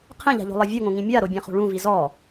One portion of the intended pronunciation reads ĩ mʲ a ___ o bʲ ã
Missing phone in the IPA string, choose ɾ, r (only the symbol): ɾ